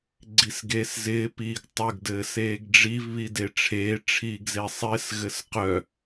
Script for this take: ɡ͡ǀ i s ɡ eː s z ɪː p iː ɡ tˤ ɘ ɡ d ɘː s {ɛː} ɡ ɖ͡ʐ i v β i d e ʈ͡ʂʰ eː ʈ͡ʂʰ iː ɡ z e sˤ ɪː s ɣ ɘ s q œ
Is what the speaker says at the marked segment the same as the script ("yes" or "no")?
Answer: no